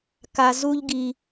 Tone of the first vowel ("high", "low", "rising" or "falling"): low